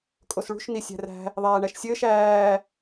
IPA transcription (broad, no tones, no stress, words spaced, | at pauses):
kʼosɭṳʃ nisʲæ̤ræ̤ | ðˤæːɳæʃsʲɘːʃ æː